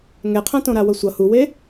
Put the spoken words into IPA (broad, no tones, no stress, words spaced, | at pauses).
ŋɛqʰãtõɾa wʌsʷʌ huwe